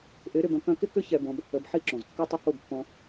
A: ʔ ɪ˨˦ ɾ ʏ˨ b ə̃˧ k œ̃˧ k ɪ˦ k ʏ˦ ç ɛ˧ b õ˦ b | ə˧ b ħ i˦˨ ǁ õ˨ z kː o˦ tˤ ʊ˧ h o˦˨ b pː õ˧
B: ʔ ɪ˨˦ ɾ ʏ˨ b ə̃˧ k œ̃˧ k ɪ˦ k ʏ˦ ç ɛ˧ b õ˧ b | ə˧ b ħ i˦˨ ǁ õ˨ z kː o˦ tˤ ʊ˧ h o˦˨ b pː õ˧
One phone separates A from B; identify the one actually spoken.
B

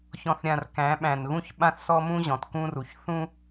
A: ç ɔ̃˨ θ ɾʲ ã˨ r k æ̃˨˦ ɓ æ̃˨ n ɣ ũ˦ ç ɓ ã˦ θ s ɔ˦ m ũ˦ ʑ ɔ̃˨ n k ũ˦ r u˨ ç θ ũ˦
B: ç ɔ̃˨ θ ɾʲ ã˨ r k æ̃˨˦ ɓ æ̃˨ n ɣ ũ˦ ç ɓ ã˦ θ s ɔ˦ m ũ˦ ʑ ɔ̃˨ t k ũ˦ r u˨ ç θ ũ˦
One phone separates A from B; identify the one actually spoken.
B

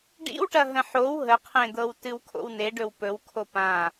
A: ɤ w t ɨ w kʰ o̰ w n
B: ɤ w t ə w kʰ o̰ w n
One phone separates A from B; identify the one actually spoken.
A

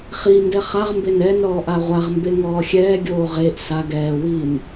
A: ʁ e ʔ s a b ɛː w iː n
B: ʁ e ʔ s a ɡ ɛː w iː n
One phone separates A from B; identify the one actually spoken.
B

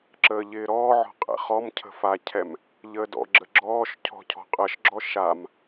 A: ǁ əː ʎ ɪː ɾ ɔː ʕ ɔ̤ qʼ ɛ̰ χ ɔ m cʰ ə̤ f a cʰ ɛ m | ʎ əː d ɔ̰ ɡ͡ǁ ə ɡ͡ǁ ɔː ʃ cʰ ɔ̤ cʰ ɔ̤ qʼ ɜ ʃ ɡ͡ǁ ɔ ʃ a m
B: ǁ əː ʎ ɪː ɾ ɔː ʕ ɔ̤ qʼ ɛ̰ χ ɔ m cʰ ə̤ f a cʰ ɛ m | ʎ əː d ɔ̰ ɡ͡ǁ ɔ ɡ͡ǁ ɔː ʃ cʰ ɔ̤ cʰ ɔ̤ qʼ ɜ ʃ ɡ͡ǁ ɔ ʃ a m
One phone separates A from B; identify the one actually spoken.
A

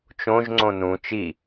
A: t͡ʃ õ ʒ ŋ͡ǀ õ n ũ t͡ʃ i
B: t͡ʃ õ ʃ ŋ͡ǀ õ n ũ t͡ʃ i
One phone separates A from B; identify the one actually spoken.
A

